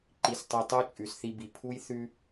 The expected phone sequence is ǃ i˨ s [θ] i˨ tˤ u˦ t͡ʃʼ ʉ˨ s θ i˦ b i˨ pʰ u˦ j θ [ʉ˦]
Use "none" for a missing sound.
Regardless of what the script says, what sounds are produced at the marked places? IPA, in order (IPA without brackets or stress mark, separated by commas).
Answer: tˤ, ʉ˦